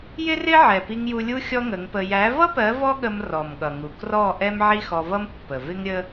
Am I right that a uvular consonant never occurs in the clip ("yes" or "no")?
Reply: yes